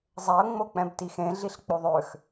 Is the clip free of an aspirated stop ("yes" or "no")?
yes